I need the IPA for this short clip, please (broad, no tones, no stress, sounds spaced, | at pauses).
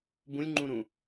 b ũ lʲ ŋ͡ǃ ũ ɾ ũ